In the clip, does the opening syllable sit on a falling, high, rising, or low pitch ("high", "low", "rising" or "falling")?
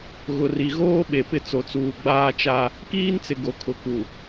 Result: low